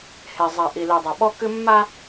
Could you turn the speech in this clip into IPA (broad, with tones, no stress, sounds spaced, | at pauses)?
h e˨ zˤ a˨ ʔ i˨ l i˨ dˤ ɐ˨ ɓ ɔ˦ k ɨ˦ mː a˦